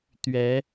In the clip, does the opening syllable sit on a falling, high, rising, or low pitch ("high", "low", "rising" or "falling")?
rising